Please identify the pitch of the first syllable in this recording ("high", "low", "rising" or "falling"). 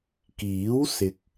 rising